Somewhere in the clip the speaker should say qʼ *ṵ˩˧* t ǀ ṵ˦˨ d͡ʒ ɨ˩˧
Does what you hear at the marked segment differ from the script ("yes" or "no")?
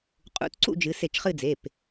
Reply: no